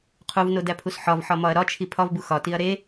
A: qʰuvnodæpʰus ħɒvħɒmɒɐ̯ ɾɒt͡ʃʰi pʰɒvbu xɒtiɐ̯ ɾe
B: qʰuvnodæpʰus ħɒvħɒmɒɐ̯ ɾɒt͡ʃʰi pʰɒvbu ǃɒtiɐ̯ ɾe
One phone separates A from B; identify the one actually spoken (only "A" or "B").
A